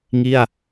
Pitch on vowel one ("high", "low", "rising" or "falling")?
falling